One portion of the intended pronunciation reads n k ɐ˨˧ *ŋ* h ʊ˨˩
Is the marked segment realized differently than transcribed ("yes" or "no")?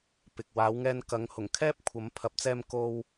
no